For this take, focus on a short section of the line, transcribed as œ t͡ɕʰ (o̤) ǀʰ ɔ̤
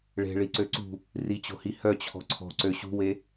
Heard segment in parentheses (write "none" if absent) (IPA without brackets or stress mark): ɔ̤